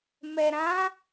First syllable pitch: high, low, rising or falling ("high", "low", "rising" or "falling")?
low